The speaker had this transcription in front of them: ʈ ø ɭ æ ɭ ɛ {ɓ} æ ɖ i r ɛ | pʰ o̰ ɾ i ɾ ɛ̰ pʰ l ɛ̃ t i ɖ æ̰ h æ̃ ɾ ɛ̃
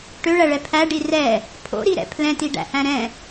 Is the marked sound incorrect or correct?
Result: incorrect: pʰ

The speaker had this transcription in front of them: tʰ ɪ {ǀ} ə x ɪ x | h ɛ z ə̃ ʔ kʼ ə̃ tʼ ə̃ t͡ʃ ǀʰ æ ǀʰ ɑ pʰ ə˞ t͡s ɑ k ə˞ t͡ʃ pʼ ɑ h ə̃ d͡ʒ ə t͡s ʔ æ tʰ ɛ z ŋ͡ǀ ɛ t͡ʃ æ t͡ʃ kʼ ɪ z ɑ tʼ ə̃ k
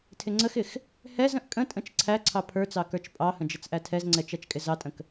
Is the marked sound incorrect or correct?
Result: incorrect: ŋ͡ǀ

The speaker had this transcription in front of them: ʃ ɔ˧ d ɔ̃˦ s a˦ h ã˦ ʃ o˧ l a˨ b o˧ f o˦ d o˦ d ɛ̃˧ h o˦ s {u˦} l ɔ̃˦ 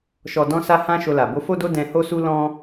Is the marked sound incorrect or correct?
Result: correct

